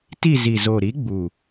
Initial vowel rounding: unrounded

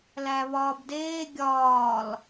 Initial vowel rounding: unrounded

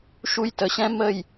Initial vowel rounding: rounded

